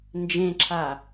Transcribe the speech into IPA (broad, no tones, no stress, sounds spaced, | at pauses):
n d͡ʒ ẽ ǁʰ a